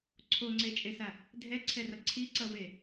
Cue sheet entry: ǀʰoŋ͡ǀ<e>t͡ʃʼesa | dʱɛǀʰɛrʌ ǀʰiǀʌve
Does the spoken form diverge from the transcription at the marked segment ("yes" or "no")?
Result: no